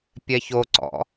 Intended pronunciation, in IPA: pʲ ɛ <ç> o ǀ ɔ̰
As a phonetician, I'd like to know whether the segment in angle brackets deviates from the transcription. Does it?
no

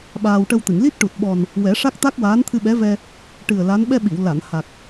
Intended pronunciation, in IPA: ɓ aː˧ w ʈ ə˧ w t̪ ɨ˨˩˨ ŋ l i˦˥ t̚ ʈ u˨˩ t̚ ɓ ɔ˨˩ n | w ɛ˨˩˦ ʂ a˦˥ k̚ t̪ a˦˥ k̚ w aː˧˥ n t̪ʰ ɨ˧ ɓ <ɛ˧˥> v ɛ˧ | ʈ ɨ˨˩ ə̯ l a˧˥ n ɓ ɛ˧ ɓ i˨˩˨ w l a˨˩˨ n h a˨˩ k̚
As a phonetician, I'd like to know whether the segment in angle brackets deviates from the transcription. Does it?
no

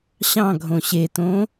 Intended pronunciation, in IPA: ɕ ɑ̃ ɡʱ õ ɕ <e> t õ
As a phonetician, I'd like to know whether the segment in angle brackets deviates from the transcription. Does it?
no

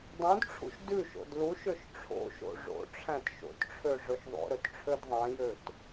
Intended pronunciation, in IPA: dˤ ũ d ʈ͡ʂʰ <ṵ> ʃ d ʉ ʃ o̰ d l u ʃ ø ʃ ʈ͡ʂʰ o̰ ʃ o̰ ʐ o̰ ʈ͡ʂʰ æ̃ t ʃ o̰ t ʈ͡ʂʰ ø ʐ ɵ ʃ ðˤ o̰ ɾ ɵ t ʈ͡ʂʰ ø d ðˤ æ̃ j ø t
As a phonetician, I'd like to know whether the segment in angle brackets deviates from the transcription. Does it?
no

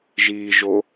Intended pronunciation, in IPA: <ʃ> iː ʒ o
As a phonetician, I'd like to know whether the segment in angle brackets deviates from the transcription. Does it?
yes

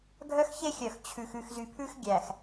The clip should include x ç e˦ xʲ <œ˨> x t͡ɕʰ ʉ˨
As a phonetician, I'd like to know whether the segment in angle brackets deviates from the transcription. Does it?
no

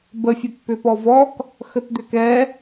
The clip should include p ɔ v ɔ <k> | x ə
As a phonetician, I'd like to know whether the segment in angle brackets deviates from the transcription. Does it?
no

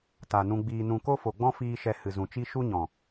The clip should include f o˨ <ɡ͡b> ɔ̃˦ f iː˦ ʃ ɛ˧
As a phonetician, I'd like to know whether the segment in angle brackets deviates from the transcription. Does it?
no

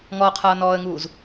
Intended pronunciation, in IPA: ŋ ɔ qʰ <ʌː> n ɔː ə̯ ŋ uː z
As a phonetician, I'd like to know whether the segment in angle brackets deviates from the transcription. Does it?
no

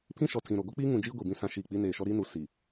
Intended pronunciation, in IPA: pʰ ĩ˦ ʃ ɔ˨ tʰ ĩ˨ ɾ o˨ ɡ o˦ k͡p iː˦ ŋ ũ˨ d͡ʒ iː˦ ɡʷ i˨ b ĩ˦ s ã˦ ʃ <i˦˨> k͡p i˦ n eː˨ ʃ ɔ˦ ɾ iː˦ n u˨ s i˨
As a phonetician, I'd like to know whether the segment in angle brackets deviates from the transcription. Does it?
no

